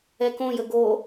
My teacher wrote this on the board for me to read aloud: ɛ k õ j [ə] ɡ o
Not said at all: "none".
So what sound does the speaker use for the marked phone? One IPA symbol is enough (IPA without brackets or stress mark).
ə